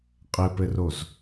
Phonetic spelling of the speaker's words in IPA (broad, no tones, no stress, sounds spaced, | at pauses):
qʼ ɘ p ɘ r o z